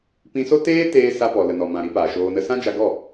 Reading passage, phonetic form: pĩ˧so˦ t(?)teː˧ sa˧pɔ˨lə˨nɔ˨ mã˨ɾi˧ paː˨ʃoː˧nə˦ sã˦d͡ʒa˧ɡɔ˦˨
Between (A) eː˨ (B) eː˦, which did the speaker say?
B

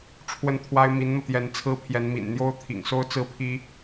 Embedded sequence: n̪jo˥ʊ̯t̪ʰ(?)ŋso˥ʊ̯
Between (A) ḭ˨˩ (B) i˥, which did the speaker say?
A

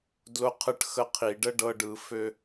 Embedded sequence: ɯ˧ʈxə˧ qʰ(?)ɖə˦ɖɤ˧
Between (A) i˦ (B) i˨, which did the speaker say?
B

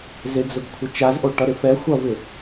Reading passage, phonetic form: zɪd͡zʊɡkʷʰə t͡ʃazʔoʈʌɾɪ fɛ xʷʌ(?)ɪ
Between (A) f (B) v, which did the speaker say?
B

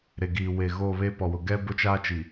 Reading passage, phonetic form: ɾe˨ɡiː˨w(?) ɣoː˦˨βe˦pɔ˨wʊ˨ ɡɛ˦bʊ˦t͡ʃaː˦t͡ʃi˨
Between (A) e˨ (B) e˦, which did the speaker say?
A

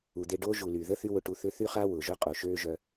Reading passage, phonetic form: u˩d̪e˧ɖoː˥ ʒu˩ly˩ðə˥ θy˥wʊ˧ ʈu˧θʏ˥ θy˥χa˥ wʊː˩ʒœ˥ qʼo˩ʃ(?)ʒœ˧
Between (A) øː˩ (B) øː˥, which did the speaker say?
B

